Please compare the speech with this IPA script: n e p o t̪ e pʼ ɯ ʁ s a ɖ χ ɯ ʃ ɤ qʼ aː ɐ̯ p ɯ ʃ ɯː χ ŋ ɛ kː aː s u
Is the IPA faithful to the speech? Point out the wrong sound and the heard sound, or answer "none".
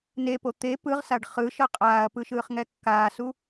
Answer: pʼ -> p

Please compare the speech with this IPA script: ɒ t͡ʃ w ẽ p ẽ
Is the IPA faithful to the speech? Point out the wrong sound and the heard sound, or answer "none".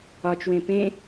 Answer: none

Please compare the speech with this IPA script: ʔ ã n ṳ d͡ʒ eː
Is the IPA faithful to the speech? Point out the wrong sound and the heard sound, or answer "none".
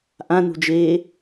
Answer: none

